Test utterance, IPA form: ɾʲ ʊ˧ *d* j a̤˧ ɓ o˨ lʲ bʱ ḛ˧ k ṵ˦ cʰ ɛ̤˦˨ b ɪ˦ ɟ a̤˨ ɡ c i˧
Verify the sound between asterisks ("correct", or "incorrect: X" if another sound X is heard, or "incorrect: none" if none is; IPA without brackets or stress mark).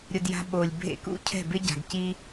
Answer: correct